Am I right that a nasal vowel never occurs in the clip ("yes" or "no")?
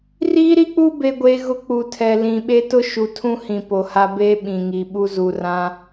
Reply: no